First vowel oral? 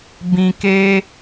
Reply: no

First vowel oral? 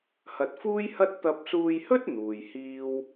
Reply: yes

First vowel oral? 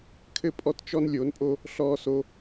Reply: yes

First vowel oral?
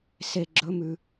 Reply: yes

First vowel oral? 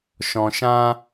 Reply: no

